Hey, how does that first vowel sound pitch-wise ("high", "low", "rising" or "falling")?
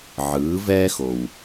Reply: rising